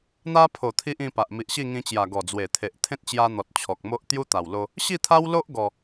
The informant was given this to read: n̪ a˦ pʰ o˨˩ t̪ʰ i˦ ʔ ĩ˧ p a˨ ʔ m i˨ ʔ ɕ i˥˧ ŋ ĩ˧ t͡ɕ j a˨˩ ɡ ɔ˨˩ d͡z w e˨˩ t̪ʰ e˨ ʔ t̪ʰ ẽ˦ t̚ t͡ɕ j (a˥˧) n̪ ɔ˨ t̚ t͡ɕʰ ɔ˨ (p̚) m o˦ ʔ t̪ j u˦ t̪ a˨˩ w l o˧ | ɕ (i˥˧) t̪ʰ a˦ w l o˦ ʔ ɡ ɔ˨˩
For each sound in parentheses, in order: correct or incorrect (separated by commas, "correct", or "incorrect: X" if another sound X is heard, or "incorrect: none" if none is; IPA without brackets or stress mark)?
incorrect: a˧, incorrect: k̚, correct